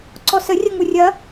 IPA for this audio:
ǀ ɔ s ə rʲ ɐ ŋ u rʲ ɐ

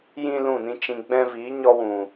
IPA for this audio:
j ĩ˦ l ũ˦˨ n ĩ˦ t͡ʃ ĩ˧ ɡ͡b ɛ̃˦ v iː˨˦ ɲ ɔ˧ w ũ˨

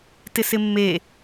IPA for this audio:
t ɪ s ɪ mː e

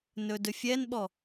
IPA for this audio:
n ɵ d ɵ fʲ ɛ n ɓ ɔ

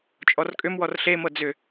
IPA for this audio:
t͡ʃʼ ɔ r kʼ ʏ m w ɔ r ɬ e m ɤ d͡z ʏ

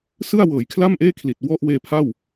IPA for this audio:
s ɯ˥˩ a̯ w ɤː˩˦ j kʰ l a˥˩ m ʔ eː˥˩ kʰ l i˨˩ t̚ w ɔ˥˩ ʔ w eː˧ pʰ a˥˩ w

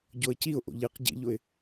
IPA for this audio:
ɟ o ə̯ c i ʊ̯ ʔ o̰ ʎ i q ɟ ḭ ʎ ʊ ɪ̯

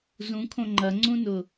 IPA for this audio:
z ũ kʰ õ ŋ͡ǃ ɐ ŋ͡ǀ ũ n ʊ

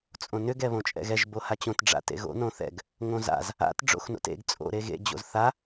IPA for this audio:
t͡sʼ õ n ʏ ɡ ɛ β õ t͡ʃʼ ɛ̰ ɣ ɛ ʒ b o h a t͡ɕ õ t ɖ͡ʐ a̰ t ḛ ɣ o̰ n õ θ ɛ̰ ɡ | ŋ õ z a̰ z | a̰ t ɖ͡ʐ o̰ x n o̰ t ḛ ɡ t͡sʼ o̰ ɾ e ɣ ḛ d͡ʑ o̰ z θ a

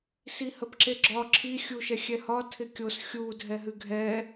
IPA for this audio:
s i h ə p ǁ e ɡ͡ǁ ɒ ǁʰ i xʲ u ʃ ɛ xʲ ɛ h ɒ tʰ ɪ kʲ o s xʲ u dʱ ɛ ɦ ɨ ɡʱ ɛ

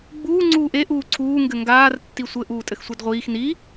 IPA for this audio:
ɡ͡b uː ŋ͡ǀ uː ʔ e ʔ uː ǀʰ uː ŋ ɡ ɘ ŋ ɡ aː r tː i sʷ ɘ ʔ uː tʼ ɘ x sʷ e d ʁʷ iː x n i

